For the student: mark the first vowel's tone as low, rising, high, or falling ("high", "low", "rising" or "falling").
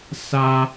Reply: high